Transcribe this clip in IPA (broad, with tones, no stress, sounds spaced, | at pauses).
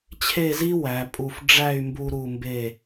t͡ɕʰ e˥˧ z i˥ w æ˩˧ pʼ u˧˩ f ɖ͡ʐ æ˥˧ y̯ m b u˧ ɾ u˧˩ m b e˧˩